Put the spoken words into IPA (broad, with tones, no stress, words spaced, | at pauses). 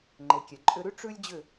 ŋ͡ǃe˨kʲɛ˨ǃʼʏ˧ɾʉ˦ ʈ͡ʂʉ˦lʲd͡ʑʏ˦˨